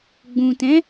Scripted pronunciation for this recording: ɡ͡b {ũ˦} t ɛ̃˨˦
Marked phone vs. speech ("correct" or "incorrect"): incorrect